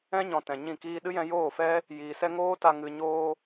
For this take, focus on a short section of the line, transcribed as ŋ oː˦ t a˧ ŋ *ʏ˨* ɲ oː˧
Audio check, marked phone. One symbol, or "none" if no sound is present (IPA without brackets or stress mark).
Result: ɨ˨